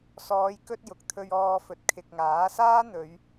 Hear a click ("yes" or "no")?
no